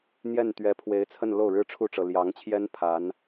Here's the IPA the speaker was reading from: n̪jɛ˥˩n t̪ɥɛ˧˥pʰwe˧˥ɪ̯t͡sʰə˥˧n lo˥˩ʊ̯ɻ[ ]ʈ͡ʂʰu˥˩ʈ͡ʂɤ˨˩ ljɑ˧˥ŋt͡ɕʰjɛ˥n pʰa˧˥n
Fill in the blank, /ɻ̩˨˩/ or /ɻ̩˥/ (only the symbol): ɻ̩˥